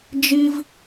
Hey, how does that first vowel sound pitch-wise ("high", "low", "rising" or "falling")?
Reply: high